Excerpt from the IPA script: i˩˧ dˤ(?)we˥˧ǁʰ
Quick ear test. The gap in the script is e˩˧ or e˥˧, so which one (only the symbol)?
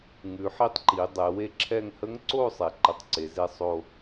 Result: e˩˧